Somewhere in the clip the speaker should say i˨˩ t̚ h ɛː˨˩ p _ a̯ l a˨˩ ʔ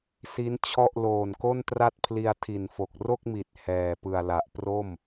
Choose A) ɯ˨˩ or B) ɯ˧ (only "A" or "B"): A